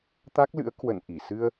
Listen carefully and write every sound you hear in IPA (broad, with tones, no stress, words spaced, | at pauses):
t̪a˦˥k̚lɨ̰˧˥ə̯ kwə̰˧˨n ʔi˧˩ sɨ˧ə̯